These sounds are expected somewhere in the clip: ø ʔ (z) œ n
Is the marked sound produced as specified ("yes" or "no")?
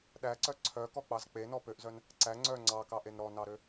yes